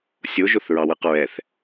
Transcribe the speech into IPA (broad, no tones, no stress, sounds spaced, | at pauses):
sʲ o ʒ o θ ɹ ɑ w ɯ q ɹ ɛ θ